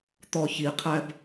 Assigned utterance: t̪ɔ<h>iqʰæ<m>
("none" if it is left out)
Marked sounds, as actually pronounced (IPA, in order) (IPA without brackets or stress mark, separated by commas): ç, b